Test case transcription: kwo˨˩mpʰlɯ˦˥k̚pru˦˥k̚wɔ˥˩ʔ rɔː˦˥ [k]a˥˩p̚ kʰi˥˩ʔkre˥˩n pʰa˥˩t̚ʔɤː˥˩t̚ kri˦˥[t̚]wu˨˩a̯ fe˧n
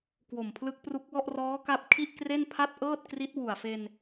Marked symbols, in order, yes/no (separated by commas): yes, yes